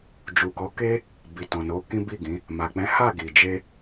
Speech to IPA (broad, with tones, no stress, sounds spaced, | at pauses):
d͡ʒ u˨ k ɔ˨˦ k e˦ | b i˨ t ɔ̃˨ n o˨˦ k ĩ˦ b i˦˨ ɡ ĩ˨˦ | m a˨ k͡p ɛ̃˨˦ h a˦˨ ɡ i˨ d͡ʒ e˧